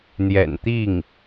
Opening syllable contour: low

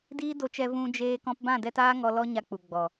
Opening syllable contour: high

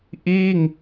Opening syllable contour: falling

